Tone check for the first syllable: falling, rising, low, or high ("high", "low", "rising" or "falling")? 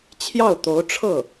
falling